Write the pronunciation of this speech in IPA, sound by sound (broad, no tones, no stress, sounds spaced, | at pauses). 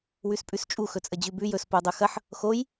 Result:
w ʉ s pʼ ʉ s t͡ʃʼ u x ɵ t͡sʼ ə d͡ʑ ʉ b ʉ j ɵ s p u dˤ u x ɐ ħ | x o j